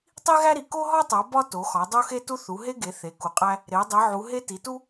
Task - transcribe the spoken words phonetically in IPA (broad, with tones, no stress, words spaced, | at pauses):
tˤi˦ɣæ˦ɾi˩˧ ko˦ɦɒ˦tˤo˩˧ bɒ˦ to˩˧xɒ˩˧ dˤo˦xe˦tu˦ θu˩˧ɦe˦ɡe˩˧ θe˩˧ku˩˧qʼæ˦ | ɾe˩˧ dˤi˩˧ʕu˩˧ɦe˦ ti˩˧tu˦